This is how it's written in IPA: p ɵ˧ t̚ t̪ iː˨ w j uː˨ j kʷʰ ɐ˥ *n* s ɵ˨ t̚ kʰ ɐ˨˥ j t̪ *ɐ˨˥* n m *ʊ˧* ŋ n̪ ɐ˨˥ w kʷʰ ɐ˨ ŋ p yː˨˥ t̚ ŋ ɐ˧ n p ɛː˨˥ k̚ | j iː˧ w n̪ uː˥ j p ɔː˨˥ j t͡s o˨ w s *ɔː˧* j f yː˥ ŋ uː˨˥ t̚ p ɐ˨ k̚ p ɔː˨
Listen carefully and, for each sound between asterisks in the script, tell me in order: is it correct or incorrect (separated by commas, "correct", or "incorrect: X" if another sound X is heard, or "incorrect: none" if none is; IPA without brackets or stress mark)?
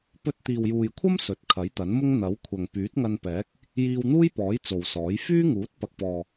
incorrect: m, correct, incorrect: ʊ˥, incorrect: ɔː˨˥